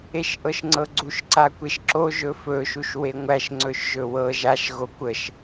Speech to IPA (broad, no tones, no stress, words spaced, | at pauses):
eʃʔɤʃŋ͡ǀɤɡ͡ǀuʃ ǀakʷeʃǁo ʒɵfɵ ʃuʃweŋʷæʃ ŋ͡ǀɵʃʒɵwɤ ʒaʃ ɣokʷəʃ